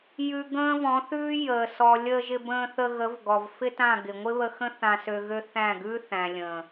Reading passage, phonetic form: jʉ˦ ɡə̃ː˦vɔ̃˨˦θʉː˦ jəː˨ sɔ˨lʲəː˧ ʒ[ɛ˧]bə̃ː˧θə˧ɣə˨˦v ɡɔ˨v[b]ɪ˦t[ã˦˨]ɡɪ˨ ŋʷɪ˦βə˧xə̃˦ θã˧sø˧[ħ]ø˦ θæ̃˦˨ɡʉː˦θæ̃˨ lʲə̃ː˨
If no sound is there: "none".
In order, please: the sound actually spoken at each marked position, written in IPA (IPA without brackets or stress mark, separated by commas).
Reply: ɪ˧, f, ã˦˨, ɣ